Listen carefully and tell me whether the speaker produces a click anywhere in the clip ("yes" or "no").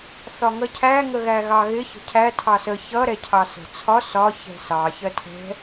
no